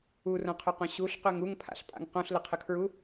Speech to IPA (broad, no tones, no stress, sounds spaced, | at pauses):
u r õ qʰ ɵ q õ ɕ u ɬ q ø ŋ u ŋ pʰ a̰ ɬ pʼ a̰ ŋ q õ ɬ l ə qʰ ə kʰ ɹ u